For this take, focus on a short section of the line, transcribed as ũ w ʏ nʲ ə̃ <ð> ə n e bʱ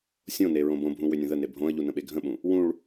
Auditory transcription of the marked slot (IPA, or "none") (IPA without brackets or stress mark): ð